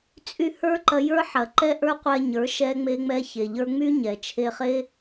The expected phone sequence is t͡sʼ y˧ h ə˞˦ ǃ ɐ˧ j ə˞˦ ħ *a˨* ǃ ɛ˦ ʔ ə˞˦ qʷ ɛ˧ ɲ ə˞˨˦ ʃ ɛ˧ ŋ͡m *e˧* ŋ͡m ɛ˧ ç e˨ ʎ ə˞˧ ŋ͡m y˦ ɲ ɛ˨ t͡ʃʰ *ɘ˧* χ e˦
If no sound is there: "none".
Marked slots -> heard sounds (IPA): ɐ˨, e˧, e˧

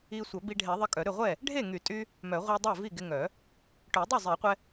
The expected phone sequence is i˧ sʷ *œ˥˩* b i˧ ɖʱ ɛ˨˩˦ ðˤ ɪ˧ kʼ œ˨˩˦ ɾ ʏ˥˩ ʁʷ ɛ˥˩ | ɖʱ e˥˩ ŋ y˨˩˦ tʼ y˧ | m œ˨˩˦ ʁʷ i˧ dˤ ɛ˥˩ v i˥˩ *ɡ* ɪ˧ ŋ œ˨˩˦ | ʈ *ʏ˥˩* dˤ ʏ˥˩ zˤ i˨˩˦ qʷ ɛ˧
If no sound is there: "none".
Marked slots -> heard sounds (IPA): œ˨˩˦, ɡ, ʏ˨˩˦

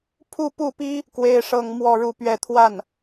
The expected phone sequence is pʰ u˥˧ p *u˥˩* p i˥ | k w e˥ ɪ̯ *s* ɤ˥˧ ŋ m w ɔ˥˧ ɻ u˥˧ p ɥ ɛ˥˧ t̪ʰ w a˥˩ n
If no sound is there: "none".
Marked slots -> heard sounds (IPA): u˥˩, ʂ

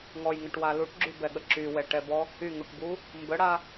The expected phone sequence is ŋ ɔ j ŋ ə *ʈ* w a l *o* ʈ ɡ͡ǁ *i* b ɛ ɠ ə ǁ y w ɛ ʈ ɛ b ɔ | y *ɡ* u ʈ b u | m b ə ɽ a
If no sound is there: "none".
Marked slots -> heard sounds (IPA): ʈ, u, y, ŋ

